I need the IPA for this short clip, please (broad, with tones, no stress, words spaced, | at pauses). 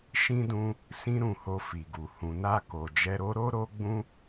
ʃĩ˦dũ˦ | sĩ˦ɾũ˦˨ho˧ fi˨ɡu˨ hũ˨na˧ko˨ d͡ʒɛ˧ɾo˦ ɾo˦ɾo˦ɡ͡bũ˦